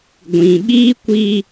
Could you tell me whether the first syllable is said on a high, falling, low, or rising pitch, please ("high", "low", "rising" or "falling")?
low